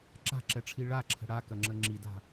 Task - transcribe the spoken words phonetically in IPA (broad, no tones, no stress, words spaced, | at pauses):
ǁa̤ǁɛʈ͡ʂʰi ɭaǁʰə̤ ɽakɐŋ͡ǁə ŋ͡ǁida̤